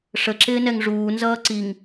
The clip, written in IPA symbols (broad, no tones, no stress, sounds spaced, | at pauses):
ʂ ə ǁ ɪː n ɛ ŋ ʐ uː n z ʌː ǀ i ŋ